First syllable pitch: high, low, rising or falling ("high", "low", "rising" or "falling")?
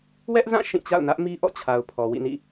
high